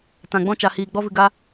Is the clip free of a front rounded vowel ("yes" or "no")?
yes